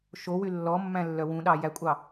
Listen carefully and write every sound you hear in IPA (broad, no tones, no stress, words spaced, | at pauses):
ʃowy lːɔmːæ̃lːœ wũɗɑ jækʷʼɑ